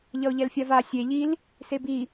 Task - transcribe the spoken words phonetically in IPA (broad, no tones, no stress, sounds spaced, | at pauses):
ʎ ʌ ʊ̯ ʎ ɛ l fʲ a v a sʲ e ʎ i l | s e b i